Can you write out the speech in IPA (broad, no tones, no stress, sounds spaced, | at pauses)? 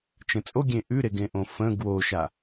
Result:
t͡ʃ ə̃ t͡sʼ o ɡʲ ẽ ʔ ʉ ɾ e ɡ ẽ ʔ õ f ə̃ ɡ w o ʃ a